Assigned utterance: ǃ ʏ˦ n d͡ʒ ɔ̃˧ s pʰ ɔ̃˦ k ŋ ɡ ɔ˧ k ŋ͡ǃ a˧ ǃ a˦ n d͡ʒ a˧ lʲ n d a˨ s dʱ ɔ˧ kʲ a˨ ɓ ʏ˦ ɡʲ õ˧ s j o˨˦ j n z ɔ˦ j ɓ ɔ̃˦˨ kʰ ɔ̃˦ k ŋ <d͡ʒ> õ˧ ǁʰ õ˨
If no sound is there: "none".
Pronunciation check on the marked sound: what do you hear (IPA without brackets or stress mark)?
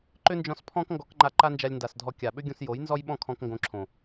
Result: ɡ